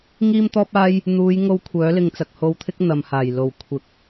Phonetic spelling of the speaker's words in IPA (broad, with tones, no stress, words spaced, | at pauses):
ŋiː˥mt̪ɔː˥p̚aː˥j | n̪uː˨˧jŋo˧w kʷʰœː˨˥lɪ˧ŋt͡sɐ˨k̚ ho˨wt̪ʰɪ˧k̚ n̪ɐ˨mhaː˨˩j lo˨˩wkʷʰɪ˨˥k̚